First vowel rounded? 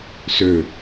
yes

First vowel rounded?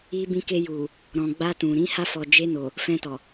no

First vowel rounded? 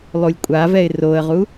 yes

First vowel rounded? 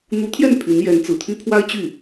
yes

